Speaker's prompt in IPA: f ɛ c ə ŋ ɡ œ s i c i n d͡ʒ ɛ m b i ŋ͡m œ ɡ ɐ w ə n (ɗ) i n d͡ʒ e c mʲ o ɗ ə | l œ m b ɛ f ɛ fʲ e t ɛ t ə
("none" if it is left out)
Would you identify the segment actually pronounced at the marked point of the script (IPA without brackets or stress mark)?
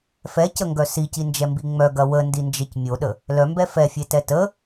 d